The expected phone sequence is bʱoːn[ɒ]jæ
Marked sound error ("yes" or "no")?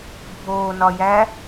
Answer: no